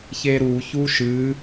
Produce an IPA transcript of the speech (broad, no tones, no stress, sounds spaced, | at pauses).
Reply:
ç e ɾ u ç u ʃ ɨ